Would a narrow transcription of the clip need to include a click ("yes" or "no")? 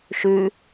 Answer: no